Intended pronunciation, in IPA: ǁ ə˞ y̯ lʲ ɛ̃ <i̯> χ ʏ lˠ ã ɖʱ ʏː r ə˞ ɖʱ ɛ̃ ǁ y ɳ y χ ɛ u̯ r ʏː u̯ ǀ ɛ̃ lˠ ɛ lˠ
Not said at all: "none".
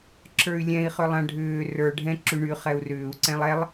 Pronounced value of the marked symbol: i̯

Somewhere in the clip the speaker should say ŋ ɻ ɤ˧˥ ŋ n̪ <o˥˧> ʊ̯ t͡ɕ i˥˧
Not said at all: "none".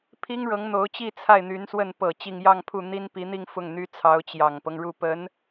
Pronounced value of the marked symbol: o˧˥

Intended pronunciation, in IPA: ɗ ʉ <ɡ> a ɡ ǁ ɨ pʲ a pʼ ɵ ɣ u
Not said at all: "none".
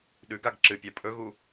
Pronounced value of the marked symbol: ɡ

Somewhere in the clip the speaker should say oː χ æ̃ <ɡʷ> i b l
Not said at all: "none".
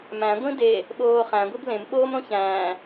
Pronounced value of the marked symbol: ɡʷ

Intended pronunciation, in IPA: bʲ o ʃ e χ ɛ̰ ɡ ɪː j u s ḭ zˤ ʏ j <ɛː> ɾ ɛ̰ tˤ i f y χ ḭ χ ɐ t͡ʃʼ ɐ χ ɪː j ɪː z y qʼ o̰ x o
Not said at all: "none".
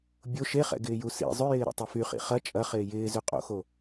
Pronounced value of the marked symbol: ɪː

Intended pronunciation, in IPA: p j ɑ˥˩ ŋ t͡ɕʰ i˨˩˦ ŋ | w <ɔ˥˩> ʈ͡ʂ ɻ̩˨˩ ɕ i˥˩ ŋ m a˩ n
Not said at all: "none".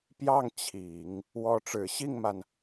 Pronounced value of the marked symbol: ɔ˧˥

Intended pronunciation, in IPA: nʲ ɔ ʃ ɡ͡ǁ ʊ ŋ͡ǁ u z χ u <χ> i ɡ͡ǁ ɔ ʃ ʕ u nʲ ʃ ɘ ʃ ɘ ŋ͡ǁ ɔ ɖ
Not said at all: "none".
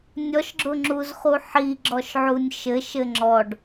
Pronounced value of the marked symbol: ħ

